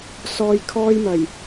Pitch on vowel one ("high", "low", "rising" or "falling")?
low